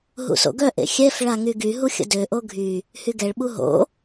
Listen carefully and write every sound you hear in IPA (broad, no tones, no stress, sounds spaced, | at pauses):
ɦ ṵ s o̰ ɡ œ ʔ ḛ xʲ ɛ f ɭ a ŋ y ɡ y ɦ u xʲ ə̰ d ø ʔ o ɡʱ y | h y ɡ ɛ ɭ ɓ u ɦ o̰